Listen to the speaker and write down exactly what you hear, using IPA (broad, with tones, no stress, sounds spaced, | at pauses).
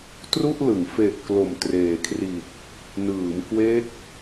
t r u˥˩ ʔ l ɯ˩˦ ŋ f e˨˩ ʔ k l o˨˩ m t r eː˨˩ kʰ r i˨˩ t̚ | n ɯː˩˦ m k w e˦˥ k̚